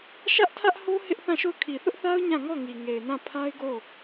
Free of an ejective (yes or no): yes